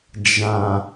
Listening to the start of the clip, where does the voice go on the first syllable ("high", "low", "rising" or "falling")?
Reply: low